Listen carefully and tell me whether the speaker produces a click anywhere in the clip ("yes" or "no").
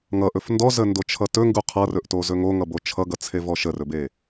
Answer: no